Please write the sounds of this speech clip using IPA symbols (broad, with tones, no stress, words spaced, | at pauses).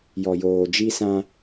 jɔ˨joː˨d͡ʒi˦sã˦